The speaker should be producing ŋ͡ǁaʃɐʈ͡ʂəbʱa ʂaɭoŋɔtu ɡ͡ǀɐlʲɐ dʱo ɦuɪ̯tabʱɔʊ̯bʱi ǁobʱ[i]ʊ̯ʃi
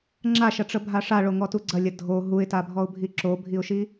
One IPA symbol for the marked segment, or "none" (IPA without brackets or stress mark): i